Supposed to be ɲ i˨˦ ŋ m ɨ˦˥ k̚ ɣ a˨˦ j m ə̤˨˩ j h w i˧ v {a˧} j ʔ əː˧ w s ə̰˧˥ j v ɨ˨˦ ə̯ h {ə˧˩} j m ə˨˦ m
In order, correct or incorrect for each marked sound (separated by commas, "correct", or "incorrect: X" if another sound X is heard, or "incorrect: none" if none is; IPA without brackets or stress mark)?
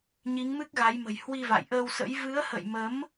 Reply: incorrect: a̰˧˨, incorrect: ə̰˧˨